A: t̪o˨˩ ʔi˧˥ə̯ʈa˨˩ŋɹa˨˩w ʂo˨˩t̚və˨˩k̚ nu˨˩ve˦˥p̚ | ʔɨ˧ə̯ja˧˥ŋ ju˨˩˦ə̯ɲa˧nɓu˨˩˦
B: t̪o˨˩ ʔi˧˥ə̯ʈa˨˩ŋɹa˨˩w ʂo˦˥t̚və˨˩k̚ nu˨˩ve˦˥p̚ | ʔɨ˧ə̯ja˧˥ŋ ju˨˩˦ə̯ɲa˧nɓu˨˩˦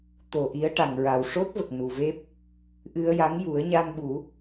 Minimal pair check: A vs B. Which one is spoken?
B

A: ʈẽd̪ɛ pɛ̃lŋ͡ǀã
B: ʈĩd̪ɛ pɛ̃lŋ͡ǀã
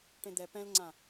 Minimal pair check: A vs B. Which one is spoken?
A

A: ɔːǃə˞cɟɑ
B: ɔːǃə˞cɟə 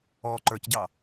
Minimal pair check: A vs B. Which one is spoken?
A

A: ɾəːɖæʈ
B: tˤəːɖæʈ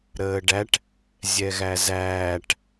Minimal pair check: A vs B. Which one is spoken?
A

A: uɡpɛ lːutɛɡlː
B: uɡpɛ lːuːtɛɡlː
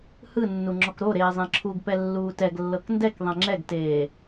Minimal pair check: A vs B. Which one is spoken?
B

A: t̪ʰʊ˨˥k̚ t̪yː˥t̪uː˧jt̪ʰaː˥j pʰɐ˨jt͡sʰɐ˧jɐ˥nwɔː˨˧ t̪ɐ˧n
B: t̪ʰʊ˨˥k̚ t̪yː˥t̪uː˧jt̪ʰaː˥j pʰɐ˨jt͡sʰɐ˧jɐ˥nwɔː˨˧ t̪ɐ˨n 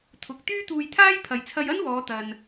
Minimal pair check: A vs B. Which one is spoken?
A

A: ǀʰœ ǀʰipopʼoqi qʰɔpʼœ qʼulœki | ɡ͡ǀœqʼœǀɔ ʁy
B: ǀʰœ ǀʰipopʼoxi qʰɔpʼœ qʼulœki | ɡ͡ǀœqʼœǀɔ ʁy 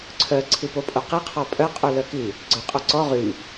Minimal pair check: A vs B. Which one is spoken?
A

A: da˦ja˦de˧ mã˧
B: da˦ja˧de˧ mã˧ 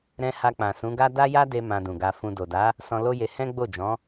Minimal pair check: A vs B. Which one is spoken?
A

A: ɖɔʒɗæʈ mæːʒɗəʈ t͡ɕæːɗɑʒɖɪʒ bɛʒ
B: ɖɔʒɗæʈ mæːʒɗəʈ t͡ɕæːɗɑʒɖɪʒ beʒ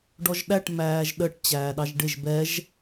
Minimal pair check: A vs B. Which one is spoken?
A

